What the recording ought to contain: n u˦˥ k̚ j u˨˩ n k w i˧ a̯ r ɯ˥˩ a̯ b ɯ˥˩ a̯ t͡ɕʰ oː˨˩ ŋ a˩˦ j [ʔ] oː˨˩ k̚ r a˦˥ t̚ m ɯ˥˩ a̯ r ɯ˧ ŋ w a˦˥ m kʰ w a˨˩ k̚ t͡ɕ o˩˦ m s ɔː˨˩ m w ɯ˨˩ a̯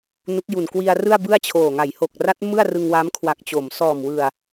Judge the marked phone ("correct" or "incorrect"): incorrect